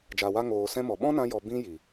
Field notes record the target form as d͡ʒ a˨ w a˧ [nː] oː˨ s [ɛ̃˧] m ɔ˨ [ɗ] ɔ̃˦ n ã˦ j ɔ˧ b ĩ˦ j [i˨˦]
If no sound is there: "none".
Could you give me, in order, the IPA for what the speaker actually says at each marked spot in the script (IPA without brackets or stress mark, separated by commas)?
ŋ, ɛ̃˧, ɓ, i˨